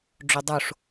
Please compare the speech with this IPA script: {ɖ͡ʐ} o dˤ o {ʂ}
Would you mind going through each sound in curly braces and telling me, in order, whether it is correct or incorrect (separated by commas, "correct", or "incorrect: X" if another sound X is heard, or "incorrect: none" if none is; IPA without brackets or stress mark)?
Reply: correct, correct